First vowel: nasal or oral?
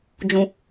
nasal